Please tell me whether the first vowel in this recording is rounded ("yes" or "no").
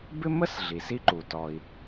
no